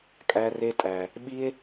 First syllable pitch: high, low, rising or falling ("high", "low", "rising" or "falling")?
high